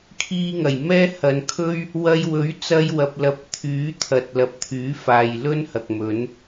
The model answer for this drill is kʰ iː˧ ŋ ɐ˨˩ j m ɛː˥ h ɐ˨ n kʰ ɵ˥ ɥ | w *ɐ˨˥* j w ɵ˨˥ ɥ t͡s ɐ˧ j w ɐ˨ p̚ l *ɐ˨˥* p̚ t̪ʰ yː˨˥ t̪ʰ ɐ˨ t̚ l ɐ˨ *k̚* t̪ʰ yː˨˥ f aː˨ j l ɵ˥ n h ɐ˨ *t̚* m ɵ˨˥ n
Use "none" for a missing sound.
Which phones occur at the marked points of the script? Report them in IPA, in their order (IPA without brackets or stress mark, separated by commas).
ɐ˧, ɐ˨˥, p̚, k̚